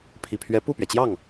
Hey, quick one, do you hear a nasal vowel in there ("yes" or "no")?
no